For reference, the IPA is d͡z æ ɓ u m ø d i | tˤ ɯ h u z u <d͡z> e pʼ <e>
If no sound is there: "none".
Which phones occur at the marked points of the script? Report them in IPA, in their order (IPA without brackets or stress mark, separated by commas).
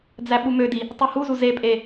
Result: z, e